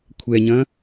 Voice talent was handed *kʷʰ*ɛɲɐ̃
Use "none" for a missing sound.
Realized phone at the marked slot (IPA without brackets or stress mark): kʷʰ